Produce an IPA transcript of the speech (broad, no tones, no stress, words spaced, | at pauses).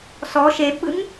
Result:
sɔ ʃebɓɯŋ